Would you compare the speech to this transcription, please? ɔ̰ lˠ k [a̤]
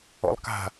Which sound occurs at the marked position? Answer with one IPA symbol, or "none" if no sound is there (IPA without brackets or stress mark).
a̤